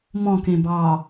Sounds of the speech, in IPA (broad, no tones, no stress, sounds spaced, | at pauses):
m ɔ̃ k ẽ b ɑ